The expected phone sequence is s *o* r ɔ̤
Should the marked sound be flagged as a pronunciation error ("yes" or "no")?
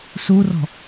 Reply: yes